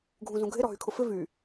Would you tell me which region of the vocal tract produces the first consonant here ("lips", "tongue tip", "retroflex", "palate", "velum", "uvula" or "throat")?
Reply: velum